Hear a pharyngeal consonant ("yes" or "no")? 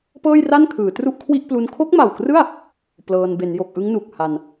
no